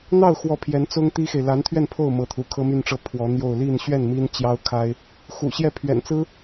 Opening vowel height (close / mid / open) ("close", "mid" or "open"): open